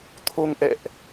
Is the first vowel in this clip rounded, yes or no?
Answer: yes